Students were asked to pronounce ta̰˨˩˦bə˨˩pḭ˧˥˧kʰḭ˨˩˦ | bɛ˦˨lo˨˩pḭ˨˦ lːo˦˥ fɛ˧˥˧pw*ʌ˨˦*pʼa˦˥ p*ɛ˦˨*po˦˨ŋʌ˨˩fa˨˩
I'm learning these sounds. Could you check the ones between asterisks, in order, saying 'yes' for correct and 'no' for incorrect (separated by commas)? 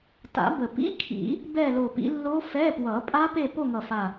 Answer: no, no